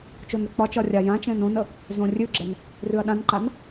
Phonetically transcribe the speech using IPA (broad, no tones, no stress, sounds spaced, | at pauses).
t͡ʃ o n ɾ ə k͡p ɒ t͡ʃ ɒ rʲ a j ã t͡ʃ ɛ̃ n õ n ə | z õ rʲ ʉ ɡ͡ǁ ɛ n | r ʉ ɐ̯ ɗ ã n ǃ a n